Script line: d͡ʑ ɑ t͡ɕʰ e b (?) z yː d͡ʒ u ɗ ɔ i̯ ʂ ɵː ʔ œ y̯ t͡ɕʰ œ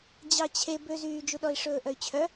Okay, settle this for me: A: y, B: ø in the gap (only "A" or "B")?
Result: B